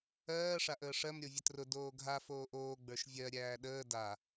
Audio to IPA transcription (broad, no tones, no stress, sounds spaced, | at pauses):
ɜː ʂ a ʔ əː ʂ ɜ m ɾʲ o vʲ ə t r ʊ d oː ɡʱ a f oː ʔ oː ɡ͡b ə˞ ʃ vʲ ɜ ɾʲ æː ɗ əː d a